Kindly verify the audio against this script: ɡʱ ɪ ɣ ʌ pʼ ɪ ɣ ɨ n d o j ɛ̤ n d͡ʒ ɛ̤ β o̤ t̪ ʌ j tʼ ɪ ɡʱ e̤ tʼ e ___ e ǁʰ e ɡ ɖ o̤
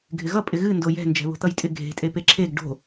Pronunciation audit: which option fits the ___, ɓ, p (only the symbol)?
p